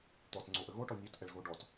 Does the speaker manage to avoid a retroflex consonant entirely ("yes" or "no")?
no